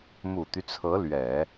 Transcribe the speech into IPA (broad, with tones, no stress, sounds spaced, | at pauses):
m u˨˩ t̪ y˦ t͡sʰ ɤ˧˥ l ɥ ɛ˨˩˦